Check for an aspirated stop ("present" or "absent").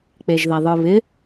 absent